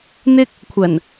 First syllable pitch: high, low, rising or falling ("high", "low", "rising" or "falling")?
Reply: high